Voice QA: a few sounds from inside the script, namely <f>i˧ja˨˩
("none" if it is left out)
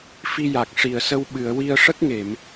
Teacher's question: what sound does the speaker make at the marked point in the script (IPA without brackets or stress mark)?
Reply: f